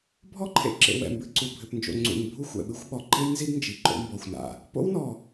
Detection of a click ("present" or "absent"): present